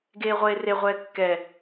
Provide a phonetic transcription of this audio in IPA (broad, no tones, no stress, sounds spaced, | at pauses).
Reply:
ɡ eː ʁʷ eː r e ʁʷ ɛː kː ɛ